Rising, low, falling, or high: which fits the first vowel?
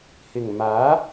low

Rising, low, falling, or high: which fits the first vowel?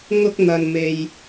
high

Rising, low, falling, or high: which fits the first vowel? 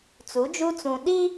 rising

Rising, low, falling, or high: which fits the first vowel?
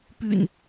low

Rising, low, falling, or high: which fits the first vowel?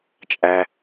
high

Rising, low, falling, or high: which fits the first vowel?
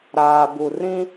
low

